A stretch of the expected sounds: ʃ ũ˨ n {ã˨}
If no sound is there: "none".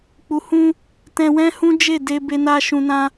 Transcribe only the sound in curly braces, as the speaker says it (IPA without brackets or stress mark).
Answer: ã˧